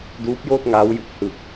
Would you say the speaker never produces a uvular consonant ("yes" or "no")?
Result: yes